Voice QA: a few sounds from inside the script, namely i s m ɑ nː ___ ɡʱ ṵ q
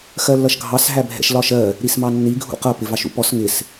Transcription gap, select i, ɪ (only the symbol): i